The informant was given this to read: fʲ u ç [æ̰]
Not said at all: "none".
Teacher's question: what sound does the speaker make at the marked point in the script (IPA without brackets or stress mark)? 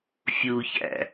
æ̰